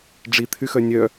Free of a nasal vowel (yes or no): yes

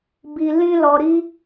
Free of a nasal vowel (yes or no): no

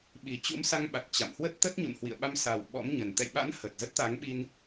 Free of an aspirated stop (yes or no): yes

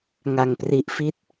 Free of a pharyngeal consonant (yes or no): yes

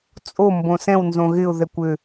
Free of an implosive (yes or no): yes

